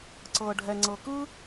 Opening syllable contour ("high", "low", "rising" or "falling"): low